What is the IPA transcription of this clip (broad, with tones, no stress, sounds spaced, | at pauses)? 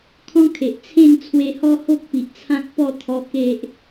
kʰ ɔ̃˦ kʰ e˨ ʔ t͡sʰ ẽ˥˧ ŋ t͡sʰ w e˧ h ɔ˦ h o˦ k̚ p i˨ ʔ t͡sʰ ã˦ k̚ p ɔ˥˧ t̪ʰ ɔ˧ k e˦ ʔ